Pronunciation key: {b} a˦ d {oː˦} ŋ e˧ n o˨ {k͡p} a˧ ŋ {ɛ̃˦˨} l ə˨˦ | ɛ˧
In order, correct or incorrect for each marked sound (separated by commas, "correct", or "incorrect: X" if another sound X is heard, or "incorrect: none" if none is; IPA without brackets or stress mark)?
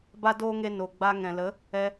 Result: correct, correct, incorrect: ɡ͡b, incorrect: ɛ̃˨